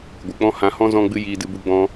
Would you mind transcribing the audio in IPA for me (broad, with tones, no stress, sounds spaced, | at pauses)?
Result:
ɡʷ ɨ˨ k͡p ɔ̃˦ h ã˧ h ɔ̃˦ z ɔ̃˦ ɡ͡b ɨ˦ j iː˧ d ɨ˧ b u˧ ɡ͡b ɔ̃˧